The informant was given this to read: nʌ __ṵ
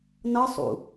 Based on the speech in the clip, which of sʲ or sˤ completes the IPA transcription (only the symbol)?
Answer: sˤ